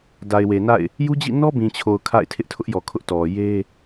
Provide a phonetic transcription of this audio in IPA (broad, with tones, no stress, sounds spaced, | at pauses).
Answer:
d a˨ ɪ̯ w e˨ n a̰˦˨ ɪ̯ | j u˦ d͡ʑ ḭ˦˨ n ɔ˦ b ĩ˨ t͡ɕʰ o˨ ʊ̯ kʰ a̰˦˨ ɪ̯ tʰ ɪ˦ ʔ tʰ ʊ˦ ʔ j ɔ˨ kʰ ʊ˦ ʔ t ɔ˨ j e˦